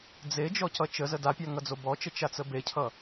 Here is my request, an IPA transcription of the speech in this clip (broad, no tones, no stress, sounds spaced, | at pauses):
d͡z e d͡ʒ ɔ c ʌ t͡ʃ ə z ə d a pʲ a ŋ ʌ d͡z o b ɔ t͡ʃ ə t͡ʃ a t͡s ə b e cʰ ʌ